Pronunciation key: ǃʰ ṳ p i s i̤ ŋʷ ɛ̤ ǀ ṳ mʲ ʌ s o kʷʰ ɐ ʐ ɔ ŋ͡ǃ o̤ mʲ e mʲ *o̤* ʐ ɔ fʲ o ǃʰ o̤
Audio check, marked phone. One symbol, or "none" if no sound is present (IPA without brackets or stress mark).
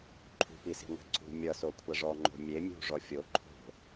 ṳ